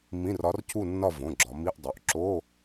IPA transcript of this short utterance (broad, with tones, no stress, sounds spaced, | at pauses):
m ĩ˧˥˧ r ɒ˧˥ r cʰ u˥˧ nː ɒ˥˧ v õ˩˧˩ ɡ͡ǁ ɒ˩˧ m i˧˥˧ ʔ dˤ o˩˧˩ ʔ ǁ o˧˥˧